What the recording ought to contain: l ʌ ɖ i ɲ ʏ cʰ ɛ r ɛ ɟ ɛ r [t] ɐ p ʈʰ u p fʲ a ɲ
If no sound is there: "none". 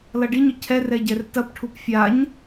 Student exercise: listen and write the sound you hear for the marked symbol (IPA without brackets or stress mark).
t